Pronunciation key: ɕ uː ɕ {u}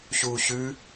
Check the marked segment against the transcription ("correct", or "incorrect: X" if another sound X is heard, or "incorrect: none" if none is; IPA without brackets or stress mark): incorrect: ʉ